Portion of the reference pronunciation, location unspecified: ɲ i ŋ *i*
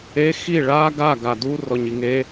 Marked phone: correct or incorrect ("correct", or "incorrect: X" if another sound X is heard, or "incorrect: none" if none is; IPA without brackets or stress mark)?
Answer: incorrect: e